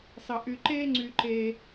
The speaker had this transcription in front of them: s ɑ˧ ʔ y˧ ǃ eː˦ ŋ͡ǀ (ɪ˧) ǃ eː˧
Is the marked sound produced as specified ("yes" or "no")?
no